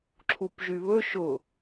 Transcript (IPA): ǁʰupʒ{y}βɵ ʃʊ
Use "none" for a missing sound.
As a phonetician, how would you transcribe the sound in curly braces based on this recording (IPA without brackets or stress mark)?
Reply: y